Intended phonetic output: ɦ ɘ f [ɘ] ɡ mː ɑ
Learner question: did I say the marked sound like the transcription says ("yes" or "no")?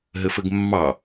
yes